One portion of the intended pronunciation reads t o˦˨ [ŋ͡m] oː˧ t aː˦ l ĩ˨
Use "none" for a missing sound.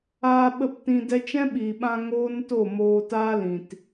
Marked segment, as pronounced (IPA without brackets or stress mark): m